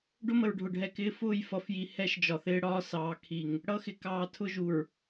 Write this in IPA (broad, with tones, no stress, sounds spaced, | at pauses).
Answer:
ɖ ʊ˦ m ə˨ ɹ ɖʱ ʊ˨ ɖʱ ɛ˨ k ɪː˦ f ʊː˦˨ j f ʌ˨ f j i˨ h ɛ˦ ʃ d͡ʒ ɒ˨ θ ɪː˦ ɽ ɒː˦ s ɑː˨ kʰ i˨ ŋ | ɽ ʌ˦ x ɪ˨ k ɑː˨ tʰ ʊ˦ ʒ u˨ ɹ